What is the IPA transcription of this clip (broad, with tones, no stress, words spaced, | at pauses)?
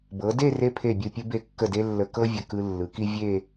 bɤ˩˧de˥˧re˧ pʰe˧˩bʲɯ˧˩pʲɯ˧ be˧˩kːə˧˩de˧ lːə˧kɤ˥vʲə˧˩ kɯ˧lːɯ˩˧ ki˧ vʲe˥˧